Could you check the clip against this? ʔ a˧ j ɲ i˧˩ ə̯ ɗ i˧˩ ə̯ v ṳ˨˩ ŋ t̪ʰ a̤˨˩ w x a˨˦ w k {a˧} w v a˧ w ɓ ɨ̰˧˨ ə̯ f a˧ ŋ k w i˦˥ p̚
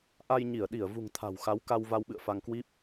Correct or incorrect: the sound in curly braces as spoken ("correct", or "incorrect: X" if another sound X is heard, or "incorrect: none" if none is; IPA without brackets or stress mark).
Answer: correct